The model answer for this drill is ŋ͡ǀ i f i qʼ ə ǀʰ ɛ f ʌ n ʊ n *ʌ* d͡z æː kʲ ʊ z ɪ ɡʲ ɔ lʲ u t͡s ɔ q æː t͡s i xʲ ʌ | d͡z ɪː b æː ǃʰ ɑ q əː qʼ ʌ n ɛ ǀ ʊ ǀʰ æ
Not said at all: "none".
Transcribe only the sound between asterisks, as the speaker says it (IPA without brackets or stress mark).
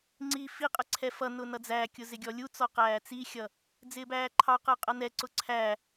ʌ